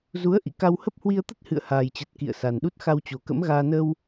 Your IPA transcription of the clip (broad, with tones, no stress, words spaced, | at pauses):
zu˨˦ə̯ ʔḭ˧˨ka˧whə˦˥p̚hwi˧ə̯ t̪ə˦˥t̚hɨ̰˧˨ə̯haː˨˩jt͡ɕə˨˩t̚ kḭ˧˨ə̯sa˨˩nɗu˦˥t̚ xa˧wt͡ɕo˨˩kə̰˧˥mɣaː˧ nə˧w